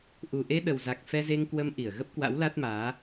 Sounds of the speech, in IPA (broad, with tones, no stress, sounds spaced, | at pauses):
ʔ u˨˩ ʔ e˧ ɗ ə˨˩ w z a˨˩ k̚ f ɛ˧ z e˧ ŋ k w ə˧ m ʔ i˧˩ ə̯ ɣ ə˦˥ p̚ k w a̰˧˥ w l a˦˥ t̚ m aː˨˦